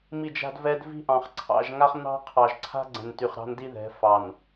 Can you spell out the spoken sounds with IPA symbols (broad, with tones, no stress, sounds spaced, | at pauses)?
m i˦˨ d͡ʒ a̤˦ d v ɛ˦ d v i̤˦ ʔ ɑ̃˨ χ ǀʰ ɑ̰˦˨ ʒ ŋ a˦ χ n̪ ɑ̤˦ qʰ ɑ˨ ʒ ǀʰ a̤˦ ɡ͡ǀ ɛ̃˨ n t y˨ χ ɾ ɑ̤˦ n d i˦ ð ɛ̤˨˦ f ɑ˨ n